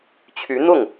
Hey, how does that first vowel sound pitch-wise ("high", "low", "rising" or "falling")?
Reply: rising